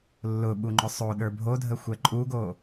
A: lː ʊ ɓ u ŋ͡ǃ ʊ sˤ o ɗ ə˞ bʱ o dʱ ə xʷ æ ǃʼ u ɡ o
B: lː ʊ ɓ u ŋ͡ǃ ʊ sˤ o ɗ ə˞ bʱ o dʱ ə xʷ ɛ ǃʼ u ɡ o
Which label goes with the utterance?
B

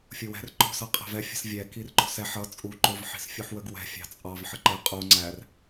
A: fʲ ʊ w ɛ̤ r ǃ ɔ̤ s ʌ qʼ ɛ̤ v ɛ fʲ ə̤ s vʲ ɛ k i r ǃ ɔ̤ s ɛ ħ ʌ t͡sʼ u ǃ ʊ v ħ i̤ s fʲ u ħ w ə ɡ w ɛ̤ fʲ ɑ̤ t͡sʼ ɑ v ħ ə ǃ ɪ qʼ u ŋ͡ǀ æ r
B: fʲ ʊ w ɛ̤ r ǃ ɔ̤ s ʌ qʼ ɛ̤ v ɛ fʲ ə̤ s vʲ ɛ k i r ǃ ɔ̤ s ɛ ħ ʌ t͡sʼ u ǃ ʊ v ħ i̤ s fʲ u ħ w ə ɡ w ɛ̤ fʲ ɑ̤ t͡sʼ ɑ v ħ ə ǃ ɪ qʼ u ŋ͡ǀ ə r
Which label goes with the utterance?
A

